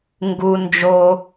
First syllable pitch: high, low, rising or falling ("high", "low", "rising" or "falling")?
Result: low